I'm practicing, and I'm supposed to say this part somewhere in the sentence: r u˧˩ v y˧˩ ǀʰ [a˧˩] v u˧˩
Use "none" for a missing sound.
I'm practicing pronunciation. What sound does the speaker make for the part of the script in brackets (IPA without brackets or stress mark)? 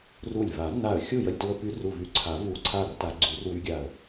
a˨˩˦